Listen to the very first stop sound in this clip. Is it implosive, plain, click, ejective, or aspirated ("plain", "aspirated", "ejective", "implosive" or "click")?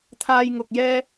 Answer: aspirated